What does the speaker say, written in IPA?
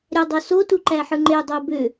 ɾʲɑdˤosotu ǃæħɯŋ͡ǃe dˤobø

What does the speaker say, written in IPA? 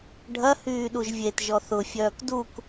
ɖʱɐ hyːɗuʒvʲet ʒɔθʊ fʲœːkduk

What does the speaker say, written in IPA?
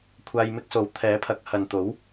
kʷʰaː˧j mɪ˥k̚so˨˥w t̪ʰɛː˨˥pʰɐ˨˥k̚ hɐ˨nt̪o˨˥w

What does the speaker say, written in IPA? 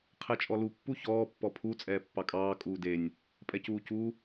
qʰɛt͡ʃʼɔlu pːuçɔː pːɔpʰu t͡sʼɛːpːɑkʼɑː kʼuːdenʲ | pʼɛcuːcu

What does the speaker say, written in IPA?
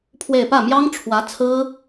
pʰwe˥˧ɪ̯ pä˥˩mjɑ˥ŋʈ͡ʂʰwä˧˥ t͡sʰɹ̩˥

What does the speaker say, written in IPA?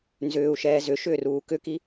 nzʏːu̯ʃɛː zʏ ʃʏːruːkʏki

